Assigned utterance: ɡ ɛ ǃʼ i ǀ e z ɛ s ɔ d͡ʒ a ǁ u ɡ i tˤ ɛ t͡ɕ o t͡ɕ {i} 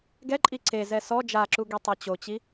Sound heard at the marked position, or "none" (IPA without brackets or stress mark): i